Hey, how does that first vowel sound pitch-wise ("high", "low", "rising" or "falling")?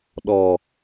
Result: low